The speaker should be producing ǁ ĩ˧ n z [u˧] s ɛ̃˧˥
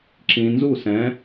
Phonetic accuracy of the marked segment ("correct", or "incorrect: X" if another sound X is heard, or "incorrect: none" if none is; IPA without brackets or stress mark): incorrect: u˥˨